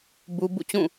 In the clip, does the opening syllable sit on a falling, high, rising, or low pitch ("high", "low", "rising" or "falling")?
high